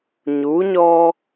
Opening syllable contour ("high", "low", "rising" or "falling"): rising